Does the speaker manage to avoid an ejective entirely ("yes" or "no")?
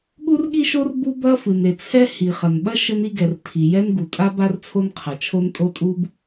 no